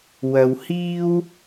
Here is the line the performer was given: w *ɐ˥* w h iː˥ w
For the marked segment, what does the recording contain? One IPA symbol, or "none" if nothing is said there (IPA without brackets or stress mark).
ɐ˧